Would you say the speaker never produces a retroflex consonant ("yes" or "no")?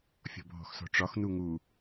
no